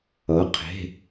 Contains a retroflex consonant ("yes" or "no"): no